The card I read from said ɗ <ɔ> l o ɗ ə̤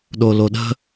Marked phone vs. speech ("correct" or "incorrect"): incorrect